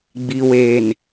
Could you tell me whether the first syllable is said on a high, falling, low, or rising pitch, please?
low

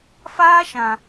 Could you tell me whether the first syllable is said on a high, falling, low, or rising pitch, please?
high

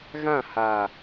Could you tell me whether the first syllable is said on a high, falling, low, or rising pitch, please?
falling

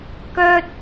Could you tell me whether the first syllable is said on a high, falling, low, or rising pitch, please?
high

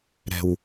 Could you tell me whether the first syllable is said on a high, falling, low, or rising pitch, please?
low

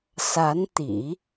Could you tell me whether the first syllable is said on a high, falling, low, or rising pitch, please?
rising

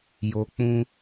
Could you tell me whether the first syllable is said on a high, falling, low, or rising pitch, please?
low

